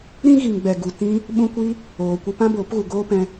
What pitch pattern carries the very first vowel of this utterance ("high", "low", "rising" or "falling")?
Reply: high